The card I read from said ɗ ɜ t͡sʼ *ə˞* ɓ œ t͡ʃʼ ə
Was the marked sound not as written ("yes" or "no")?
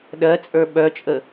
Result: no